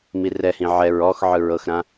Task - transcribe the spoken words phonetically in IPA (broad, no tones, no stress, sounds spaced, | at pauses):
m i r ɛ h ĩ ʕ ɛ ɹ ɔ x ʕ ɯ ɹ ɤ x ɾ ã